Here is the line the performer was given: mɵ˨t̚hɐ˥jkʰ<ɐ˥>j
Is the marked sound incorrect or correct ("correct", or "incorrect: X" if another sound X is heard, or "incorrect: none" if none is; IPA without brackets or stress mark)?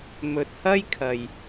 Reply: incorrect: ɐ˨